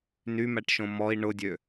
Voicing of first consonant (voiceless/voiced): voiced